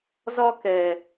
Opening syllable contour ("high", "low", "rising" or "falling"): high